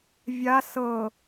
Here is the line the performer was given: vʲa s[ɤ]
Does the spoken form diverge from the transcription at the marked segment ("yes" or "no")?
no